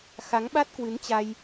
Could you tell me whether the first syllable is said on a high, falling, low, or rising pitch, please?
rising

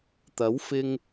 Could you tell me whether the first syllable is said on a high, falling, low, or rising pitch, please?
rising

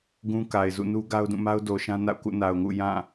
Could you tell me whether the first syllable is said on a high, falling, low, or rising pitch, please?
high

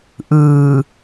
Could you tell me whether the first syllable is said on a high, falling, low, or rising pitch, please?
low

